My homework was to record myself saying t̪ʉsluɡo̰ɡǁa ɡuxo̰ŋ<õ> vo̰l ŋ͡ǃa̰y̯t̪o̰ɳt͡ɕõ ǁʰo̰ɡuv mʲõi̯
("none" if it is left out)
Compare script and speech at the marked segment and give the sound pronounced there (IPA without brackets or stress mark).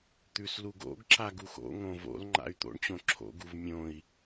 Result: õ